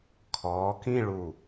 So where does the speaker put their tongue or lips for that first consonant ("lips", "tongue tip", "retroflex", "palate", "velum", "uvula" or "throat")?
velum